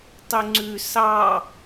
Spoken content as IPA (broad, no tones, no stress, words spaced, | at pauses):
tˤʉŋ͡ǀʉ sɑ